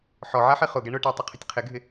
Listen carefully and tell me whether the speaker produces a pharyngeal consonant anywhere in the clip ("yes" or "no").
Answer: yes